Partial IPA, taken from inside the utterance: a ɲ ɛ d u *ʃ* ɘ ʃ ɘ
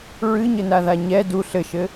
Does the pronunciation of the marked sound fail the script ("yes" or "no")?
yes